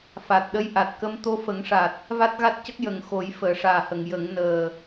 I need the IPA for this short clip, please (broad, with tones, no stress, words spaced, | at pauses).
fa˨˩t̚ ɗə˧˥jʔa˨˩t̚kə˧˥m t̪o˧fə˨˩˦ŋʂa˨˩t̚ | va˦˥t̚ɣa˦˥t̚cə˦˥k̚ jə˨˩ŋ xo˨˩˦jfəː˨˩˨ʂaː˨˩hə˨˩˨ŋ jə˨˩˦ŋ nəː˨˩